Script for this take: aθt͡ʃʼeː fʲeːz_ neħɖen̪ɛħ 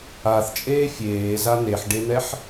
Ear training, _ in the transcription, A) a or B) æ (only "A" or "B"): A